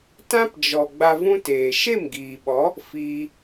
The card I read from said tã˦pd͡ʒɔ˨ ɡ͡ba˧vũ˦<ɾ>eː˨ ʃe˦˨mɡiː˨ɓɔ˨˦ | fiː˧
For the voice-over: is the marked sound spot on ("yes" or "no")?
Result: no